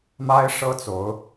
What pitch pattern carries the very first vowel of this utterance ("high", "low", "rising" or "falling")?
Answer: high